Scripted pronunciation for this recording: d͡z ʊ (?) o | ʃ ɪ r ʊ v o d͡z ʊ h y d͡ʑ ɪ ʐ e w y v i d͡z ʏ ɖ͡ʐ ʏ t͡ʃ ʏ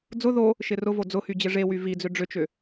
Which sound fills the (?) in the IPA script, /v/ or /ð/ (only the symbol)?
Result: ð